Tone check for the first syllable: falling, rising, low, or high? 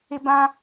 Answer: high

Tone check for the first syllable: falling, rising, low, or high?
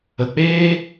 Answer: low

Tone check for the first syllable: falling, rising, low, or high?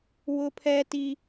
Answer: high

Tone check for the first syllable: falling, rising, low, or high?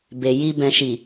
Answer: low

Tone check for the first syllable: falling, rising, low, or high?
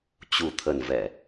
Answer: low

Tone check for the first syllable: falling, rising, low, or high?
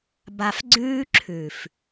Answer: low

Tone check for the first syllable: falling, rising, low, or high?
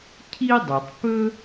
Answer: high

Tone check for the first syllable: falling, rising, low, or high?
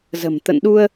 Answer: low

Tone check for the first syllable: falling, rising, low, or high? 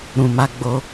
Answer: low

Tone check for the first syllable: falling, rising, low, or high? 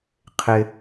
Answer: high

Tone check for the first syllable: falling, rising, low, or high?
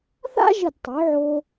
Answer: high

